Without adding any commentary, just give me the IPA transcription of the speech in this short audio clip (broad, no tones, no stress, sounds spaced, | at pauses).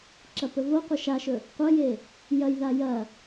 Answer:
ǁ ɐ p ɵ v o qʷ ɐ ʃ a ʃ ɵ | qʷ ɐ j e | j ɐ j ð a j ɐ